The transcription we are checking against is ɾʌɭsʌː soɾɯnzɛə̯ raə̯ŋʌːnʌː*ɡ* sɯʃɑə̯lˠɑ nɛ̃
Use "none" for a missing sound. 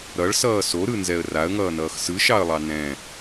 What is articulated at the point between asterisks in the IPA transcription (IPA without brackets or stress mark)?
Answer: x